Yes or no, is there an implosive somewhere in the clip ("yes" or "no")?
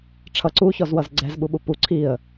yes